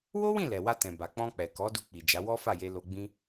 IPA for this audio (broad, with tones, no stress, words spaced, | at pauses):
wo˦wĩ˦˨ lɛ˨wa˧tɛ̃˨ ba˨k͡pɔ̃˧k͡pɛ˨ kɔ˨˦ du˧k͡pi˨ d͡ʒa˨˦ wɔ˦fa˦˨ je˧lo˧ɡ͡bĩ˦